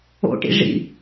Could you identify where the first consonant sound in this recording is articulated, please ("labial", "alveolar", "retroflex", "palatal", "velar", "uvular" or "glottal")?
retroflex